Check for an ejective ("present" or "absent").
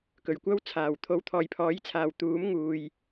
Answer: absent